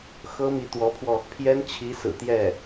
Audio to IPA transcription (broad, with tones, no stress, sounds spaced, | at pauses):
x ɤ˥ m i˧˥ t̪ w ɔ˧˥ pʰ w ɔ˧ | pʰ j ɛ˥ n t͡ɕʰ i˧˥ s ɹ̩˨˩ t̪ j ɛ˥˩